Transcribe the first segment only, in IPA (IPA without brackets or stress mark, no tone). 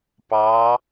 p